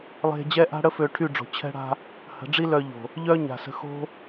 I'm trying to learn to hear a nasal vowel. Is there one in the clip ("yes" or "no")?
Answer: no